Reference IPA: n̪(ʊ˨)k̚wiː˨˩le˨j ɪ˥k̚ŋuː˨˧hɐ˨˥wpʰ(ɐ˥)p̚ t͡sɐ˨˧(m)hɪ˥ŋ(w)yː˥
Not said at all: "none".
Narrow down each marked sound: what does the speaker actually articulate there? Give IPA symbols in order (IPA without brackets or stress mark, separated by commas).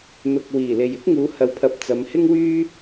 ʊ˨, ɐ˨, m, w